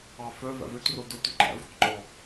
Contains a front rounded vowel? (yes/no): yes